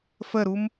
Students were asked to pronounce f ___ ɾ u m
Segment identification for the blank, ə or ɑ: ə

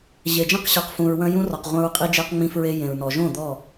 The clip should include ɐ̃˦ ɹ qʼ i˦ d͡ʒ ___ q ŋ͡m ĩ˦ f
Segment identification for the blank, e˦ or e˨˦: e˦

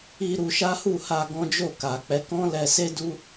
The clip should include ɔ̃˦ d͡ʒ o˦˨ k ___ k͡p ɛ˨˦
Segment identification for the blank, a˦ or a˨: a˨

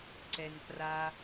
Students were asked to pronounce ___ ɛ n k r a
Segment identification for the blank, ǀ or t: ǀ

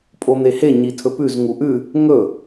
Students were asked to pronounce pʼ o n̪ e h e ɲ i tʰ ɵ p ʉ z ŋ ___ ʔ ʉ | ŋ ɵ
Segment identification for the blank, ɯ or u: u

